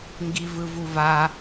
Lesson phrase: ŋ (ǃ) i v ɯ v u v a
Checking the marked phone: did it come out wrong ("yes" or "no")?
yes